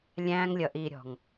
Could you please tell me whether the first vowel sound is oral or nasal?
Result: nasal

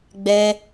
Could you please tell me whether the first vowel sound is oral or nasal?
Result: oral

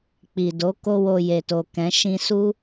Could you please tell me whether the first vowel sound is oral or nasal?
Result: oral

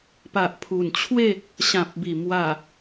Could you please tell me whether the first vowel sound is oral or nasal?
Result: oral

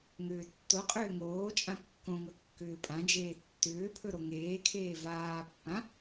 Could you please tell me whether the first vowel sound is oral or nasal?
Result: oral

